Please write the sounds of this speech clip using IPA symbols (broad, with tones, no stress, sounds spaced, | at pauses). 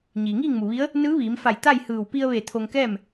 ɲ iː˩ ŋ iː˥˨ ŋ m u˩ ʋ i˧˥ ə̯ | n ɯː˧˥ ʋ iː˩˧ m f a˧˩ j t̪ a˥˨ j h ɯː˧˩ w p i˧ ə̯ ʋ e˧˩ t̪ʰ o˧ ŋ k ɛː˥˨ m